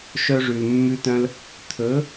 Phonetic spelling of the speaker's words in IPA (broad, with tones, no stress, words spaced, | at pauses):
ʃœ˧ʐʉ˨lmːʉ˧tœ̃˧l | t̪ʰɵ˨˦